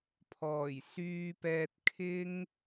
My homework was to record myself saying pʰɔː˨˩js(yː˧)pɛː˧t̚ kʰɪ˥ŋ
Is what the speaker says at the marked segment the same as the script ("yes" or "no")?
yes